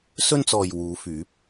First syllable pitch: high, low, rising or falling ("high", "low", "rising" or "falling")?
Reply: high